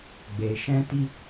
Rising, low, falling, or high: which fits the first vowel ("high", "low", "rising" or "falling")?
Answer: low